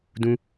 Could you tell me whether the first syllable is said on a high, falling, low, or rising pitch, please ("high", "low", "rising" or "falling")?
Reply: high